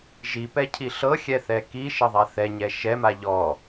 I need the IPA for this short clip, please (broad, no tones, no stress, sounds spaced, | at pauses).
ʒ i p ɛ cʰ i ɬ ɤ xʲ ɛ θ ɛ k i ʃ ɐ ðˤ a θ ɛ ɲ ɛ ʃ ɛ m a ʎ ɔ